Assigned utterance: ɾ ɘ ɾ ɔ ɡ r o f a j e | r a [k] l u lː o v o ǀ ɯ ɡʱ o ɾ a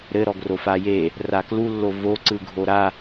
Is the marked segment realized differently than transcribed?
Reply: no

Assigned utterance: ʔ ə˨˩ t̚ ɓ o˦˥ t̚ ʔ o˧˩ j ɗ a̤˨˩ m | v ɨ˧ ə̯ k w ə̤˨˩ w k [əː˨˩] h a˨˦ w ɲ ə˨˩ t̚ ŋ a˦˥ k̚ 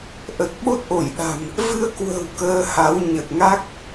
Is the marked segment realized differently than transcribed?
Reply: yes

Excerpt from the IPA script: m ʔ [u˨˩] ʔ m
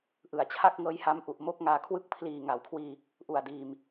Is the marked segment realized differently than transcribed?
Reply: no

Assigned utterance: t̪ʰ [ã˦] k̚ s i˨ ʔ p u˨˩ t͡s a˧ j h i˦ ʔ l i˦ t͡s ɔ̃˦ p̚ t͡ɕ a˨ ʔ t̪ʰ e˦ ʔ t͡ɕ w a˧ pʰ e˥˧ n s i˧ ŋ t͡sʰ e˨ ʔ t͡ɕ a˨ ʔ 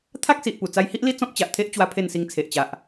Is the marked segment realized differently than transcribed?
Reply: yes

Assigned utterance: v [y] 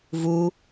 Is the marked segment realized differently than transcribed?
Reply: yes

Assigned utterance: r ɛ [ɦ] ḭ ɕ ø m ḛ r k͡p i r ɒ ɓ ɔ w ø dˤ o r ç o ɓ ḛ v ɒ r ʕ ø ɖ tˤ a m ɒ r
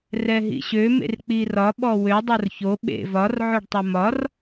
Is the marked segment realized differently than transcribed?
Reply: no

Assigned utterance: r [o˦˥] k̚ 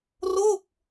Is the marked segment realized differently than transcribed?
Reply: yes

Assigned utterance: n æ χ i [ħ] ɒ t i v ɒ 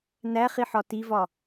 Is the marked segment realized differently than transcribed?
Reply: no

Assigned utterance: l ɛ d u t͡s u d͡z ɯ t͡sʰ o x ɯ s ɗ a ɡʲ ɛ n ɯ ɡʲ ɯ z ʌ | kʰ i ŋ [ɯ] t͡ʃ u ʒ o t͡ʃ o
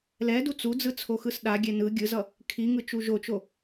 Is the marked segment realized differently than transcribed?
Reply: no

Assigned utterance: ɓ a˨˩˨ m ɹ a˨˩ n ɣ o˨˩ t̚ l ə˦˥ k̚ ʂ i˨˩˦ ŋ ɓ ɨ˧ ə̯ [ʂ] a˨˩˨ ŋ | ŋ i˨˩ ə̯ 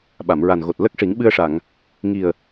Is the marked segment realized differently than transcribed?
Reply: no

